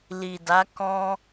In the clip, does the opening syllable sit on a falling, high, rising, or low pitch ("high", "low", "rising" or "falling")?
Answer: low